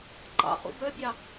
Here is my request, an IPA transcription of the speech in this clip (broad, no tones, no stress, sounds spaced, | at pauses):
ǃ ɑ̰ χ ṵ b œ bʲ ɑ